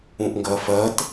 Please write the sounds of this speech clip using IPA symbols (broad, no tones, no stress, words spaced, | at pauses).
ũʔŋɡɜfɜt